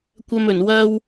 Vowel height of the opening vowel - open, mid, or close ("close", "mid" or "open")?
open